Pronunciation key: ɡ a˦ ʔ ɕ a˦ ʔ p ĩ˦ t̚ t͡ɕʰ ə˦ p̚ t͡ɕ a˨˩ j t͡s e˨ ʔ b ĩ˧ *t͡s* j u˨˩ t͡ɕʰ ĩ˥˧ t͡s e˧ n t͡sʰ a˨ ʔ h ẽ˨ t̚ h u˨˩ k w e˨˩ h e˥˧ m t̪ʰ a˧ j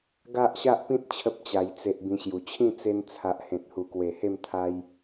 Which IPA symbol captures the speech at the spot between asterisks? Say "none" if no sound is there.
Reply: ɕ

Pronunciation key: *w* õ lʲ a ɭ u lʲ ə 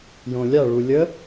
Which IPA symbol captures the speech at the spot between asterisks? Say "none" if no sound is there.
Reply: j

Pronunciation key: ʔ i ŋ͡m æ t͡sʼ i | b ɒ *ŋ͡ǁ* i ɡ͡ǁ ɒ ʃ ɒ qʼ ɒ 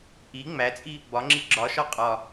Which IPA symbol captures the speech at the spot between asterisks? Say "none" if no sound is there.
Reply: ŋ͡ǁ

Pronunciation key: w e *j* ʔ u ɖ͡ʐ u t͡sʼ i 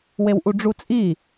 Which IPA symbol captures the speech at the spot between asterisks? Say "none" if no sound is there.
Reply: w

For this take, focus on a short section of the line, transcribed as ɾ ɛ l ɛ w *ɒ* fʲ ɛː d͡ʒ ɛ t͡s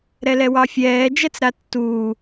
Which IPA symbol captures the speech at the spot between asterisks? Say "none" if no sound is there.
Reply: ɑ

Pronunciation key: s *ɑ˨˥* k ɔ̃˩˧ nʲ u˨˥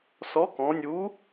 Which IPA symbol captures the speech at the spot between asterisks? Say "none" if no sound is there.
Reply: ɔ˨˥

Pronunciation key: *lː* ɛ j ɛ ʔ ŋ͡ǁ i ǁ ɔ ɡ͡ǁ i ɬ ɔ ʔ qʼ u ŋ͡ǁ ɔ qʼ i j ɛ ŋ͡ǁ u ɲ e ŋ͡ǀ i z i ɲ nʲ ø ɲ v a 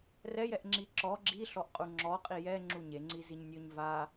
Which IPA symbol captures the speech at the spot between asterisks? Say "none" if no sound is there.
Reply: r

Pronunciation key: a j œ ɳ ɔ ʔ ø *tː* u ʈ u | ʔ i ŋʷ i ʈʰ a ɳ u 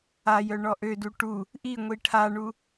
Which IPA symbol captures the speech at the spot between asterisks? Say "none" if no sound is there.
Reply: d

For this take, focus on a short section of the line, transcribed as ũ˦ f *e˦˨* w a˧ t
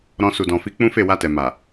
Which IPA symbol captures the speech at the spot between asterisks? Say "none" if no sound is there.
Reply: e˦˨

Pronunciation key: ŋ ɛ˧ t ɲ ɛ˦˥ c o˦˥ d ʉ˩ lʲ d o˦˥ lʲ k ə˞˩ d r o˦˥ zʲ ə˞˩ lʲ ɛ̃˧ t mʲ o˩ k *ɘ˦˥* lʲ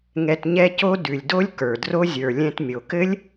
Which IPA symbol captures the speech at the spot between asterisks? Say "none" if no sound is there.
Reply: ɘ˦˥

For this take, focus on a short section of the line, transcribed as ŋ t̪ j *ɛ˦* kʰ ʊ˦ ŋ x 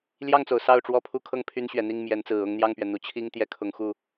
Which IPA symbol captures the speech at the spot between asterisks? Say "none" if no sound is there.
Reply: ɛ˦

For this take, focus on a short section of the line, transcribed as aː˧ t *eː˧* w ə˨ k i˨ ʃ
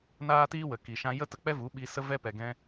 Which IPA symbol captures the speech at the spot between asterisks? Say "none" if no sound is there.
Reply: iː˧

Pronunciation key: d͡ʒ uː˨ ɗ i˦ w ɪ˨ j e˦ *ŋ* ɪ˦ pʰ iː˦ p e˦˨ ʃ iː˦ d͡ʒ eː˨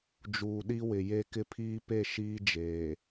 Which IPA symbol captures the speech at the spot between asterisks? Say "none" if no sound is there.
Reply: k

